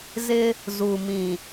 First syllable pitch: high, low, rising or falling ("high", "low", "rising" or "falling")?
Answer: high